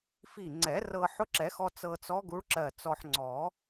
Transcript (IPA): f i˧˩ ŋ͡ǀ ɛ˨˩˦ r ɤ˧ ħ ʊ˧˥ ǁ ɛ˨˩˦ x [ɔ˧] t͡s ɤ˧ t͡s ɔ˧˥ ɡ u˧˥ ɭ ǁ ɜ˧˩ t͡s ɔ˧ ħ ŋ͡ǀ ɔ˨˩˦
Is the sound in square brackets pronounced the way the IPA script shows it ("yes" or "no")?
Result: yes